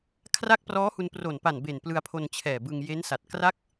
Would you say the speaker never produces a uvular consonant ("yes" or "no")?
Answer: yes